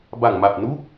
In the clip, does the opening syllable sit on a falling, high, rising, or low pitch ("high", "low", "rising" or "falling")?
low